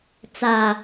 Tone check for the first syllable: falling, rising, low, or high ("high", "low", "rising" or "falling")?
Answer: low